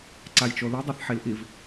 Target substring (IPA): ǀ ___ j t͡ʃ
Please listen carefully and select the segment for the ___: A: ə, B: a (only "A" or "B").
B